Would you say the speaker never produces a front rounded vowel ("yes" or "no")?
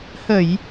yes